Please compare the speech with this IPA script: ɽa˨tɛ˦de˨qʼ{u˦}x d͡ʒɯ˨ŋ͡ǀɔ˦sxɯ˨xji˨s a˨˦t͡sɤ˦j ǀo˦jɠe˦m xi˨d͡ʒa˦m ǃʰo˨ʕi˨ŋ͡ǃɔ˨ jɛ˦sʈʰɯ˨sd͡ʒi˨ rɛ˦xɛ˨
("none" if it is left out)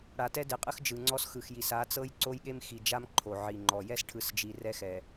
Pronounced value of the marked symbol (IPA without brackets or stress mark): ɯ˦